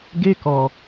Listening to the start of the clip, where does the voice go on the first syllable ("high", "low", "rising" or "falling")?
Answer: high